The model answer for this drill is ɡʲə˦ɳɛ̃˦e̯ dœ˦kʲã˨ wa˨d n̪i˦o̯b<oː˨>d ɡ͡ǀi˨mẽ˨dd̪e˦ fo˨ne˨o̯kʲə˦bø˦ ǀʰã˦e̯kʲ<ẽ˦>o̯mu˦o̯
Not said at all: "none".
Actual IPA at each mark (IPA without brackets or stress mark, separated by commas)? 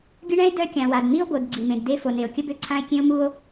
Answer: o˨, ẽ˦